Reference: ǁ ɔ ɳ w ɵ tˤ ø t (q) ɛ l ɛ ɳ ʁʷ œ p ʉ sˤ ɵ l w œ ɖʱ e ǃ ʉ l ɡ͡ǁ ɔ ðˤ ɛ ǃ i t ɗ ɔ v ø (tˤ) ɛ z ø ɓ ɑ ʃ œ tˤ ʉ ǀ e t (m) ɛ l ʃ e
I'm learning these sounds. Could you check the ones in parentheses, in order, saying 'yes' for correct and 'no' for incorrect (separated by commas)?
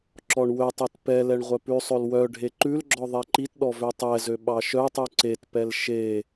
no, yes, no